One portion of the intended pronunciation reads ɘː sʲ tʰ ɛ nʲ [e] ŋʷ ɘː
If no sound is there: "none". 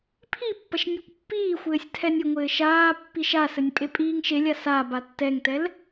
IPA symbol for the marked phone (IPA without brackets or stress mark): ɨ